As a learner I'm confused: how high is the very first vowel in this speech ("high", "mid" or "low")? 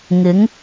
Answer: high